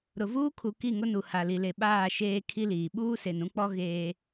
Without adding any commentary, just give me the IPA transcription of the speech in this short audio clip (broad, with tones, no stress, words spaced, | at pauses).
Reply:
ɾʊ˨vuː˦kʰu˨ ki˦˨ŋʊ˦nu˨ ha˨li˨le˨ ɓaː˦˨ʃeː˦ kʰi˦liː˨ ɓuː˦se˨nũ˦k͡pɔ˦ ɣeː˦